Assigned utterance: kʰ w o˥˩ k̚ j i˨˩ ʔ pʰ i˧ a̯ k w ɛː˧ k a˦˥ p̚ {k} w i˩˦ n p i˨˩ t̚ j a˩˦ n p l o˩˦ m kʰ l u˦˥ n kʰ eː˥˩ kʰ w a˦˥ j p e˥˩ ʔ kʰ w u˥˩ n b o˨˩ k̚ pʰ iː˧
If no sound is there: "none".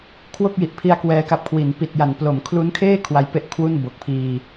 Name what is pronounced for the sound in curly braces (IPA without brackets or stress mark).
kʰ